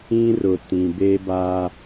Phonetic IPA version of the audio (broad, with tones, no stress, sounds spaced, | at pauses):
ĩ˦ r ʊ˨ t ĩ˨ b e˦ b a˦